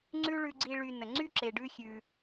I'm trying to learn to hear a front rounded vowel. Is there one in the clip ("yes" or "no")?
yes